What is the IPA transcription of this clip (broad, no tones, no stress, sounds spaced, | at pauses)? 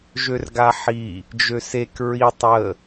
ʒ ø r ɡ a ħ i | d͡ʒ ø s e k ɹ i tˤ ə